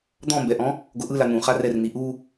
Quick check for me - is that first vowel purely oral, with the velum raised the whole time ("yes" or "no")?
no